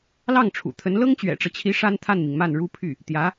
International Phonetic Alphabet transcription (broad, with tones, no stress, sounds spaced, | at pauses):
l ɑ˥˩ ŋ ʈ͡ʂʰ ṵ˨˩ t̪ʰ ə˧˥ n l ɤ˥ ŋ t͡ɕ ɥ ɛ̰˨˩ ʈ͡ʂ ɤ˦ t͡ɕʰ i˧˥ ʂ a˥ n t̪ʰ a˥˩ n m i˩ ŋ m a˥˩ n ɻ u˥ pʰ y˥˩ | t̪ j ä˧˥